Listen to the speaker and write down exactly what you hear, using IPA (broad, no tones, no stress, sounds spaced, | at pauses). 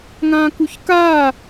ŋ ãː k u ç k aː